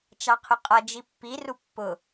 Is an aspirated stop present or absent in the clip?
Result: present